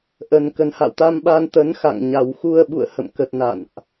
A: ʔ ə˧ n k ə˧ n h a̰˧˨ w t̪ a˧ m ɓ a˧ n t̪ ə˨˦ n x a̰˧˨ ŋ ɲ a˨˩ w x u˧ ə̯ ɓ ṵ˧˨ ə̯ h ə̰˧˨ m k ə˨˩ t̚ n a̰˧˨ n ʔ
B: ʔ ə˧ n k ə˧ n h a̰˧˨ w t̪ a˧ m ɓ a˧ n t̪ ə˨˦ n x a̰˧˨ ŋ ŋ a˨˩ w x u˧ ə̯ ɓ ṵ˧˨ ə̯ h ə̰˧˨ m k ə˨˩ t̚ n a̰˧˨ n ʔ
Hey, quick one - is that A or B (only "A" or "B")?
A